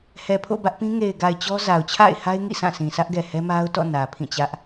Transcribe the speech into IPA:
h ɛ˨ pʰ o̰˦˨ b ä˦ ʔ p ĩ˦ ŋ e˨ ɪ̯ ɡ a˨ ɪ̯ t͡ɕ ɔ˦ z a˨ ʊ̯ t͡ɕʰ a̰˦˨ ɪ̯ h a˦ ɪ̯ ŋ ḭ˦˨ s ã˦˨ sʰ ĩ˨ sʰ ä˦ ʔ ɡ ɛ˨ h ɛ˦ m a˦ ʊ̯ t ɔ̰˦˨ n ä˨ pʰ ĩ˦˨ t͡ɕ ä˦ ʔ

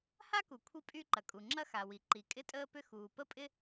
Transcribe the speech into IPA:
h a˥ k u˩ kʷʰ i˥ pʼ y˥ ǃ ɐ˩ kʼ u˩ ŋ͡ǁ ɐ˥ x a˩ w i˩ ǃ i˩ kʼ ɪ˥ tʼ əː˥ p ʏ˥ x uː˩ p ə˥ pʼ ɪ˥

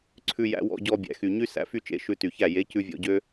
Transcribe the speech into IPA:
ǀʰ ʉ˧ j æ̰˧ w ɔ̰˧ ɟ ɔ˧ bʲ æ̰˨ x y˨ ɲ y˦ s æ̰˨ f y˧ t͡ʃ ḛ˨˦ ʃ ʉ˧ t y˨ ç æ˦˨ j e˨˦ c ʉ˧ vʲ ɔ̰˧ ɟ ø˦

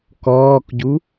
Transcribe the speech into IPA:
k ɔː k ɟ u

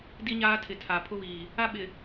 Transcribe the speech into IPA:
d i˦ ɲ aː˦ tʰ ɪ˨ tʰ a˨ pʰ ʊ˦ v iː˨ | a˦ ɓ ɪ˨

